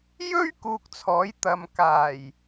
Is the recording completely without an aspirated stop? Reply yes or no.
no